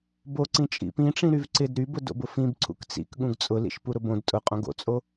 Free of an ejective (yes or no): no